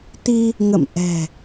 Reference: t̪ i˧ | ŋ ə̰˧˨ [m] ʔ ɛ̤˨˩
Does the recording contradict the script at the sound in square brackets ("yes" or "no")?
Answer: no